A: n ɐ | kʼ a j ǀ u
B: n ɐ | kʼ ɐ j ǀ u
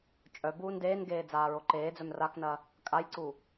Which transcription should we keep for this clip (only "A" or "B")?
A